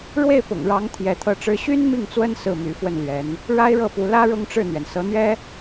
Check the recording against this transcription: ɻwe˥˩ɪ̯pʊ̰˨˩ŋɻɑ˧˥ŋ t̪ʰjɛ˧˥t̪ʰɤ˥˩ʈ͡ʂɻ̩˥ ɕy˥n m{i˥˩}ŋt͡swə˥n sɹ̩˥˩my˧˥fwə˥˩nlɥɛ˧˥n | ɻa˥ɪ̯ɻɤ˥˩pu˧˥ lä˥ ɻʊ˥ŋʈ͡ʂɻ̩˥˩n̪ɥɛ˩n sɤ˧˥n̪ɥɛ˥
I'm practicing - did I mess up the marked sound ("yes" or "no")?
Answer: no